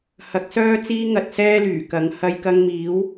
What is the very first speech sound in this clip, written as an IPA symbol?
h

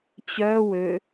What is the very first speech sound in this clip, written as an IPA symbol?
t͡ɕ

